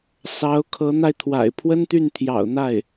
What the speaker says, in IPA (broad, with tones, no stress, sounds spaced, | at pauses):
s ɑ˧˥ ʊ̯ kʰ ɤ˧˥ n̪ a˧ ɪ̯ t̪ʰ w a̰˨˩ ɪ̯ pʰ w ə˥ n t̪ y˥˩ n t̪ʰ j ɑ̰˨˩ ʊ̯ n̪ a˥˩ ɪ̯